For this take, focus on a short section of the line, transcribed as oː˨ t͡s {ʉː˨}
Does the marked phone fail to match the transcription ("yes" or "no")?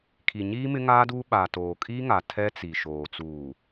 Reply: yes